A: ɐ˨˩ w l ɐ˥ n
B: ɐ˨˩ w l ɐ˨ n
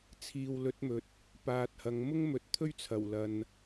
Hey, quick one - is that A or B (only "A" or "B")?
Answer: B